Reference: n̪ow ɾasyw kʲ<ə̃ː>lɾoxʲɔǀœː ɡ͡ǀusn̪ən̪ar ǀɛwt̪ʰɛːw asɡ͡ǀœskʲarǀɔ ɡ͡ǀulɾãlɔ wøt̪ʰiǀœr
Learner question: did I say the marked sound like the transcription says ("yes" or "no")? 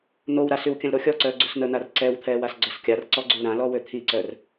no